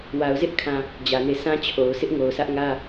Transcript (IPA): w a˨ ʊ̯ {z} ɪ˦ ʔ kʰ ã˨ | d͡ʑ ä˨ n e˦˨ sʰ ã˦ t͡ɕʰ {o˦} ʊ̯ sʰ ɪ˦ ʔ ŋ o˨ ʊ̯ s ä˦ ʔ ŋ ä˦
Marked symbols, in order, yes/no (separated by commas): yes, no